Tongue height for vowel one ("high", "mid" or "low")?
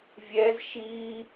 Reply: mid